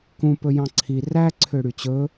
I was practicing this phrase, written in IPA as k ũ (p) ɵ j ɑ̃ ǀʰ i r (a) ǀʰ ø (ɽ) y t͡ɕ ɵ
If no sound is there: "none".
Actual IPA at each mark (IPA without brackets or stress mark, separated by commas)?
p, æ, ɽ